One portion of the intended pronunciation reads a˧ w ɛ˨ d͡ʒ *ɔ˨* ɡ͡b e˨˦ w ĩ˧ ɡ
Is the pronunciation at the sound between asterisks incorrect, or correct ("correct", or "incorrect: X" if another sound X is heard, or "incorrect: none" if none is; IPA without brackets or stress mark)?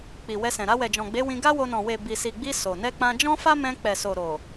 incorrect: ɔ̃˨